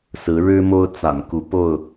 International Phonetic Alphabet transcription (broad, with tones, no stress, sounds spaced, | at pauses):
s ɹ̩˨˦ ɻ ɻ̩˦ m o˦ ʊ̯ t͡s a̰˨˩ n k u˨˦ p o˥˨ ʊ̯